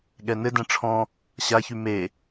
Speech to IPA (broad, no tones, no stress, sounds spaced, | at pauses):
ɠ ɛ n ɘ d ɛ̃ ʈ͡ʂʰ ɔ̃ | ɕ a ç y m e